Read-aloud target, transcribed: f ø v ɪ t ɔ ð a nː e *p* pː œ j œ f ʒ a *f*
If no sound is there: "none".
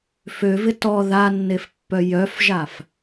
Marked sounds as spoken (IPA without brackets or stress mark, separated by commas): f, f